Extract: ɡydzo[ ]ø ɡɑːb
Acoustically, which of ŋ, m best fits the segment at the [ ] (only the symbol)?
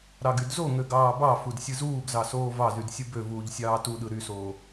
ŋ